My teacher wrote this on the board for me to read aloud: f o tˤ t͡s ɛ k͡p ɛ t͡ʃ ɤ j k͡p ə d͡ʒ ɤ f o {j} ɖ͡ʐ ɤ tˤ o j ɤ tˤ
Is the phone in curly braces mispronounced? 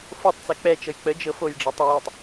no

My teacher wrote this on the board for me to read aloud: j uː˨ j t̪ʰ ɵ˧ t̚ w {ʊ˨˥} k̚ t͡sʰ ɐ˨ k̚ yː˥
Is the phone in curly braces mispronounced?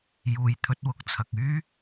no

